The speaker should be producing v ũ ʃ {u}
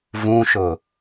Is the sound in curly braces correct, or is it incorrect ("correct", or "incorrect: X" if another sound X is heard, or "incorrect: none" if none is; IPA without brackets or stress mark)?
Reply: incorrect: ʊ